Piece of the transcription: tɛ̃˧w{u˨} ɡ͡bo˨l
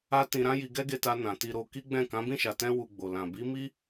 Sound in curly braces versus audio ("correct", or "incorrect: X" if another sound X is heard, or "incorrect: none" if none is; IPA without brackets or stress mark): correct